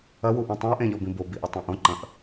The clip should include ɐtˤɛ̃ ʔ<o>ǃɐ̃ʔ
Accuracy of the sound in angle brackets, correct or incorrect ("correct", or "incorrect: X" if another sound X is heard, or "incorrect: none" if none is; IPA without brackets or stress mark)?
incorrect: õ